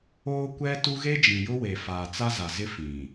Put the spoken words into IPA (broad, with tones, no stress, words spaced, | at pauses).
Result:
oː˦kʷɛ˦tu˦ ɣe˦d͡ʒĩ˨jʊ˦we˨ faː˨t͡sa˦za˨zɪ˦ fĩ˨